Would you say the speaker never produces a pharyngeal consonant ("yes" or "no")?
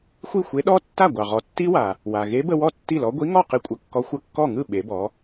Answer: yes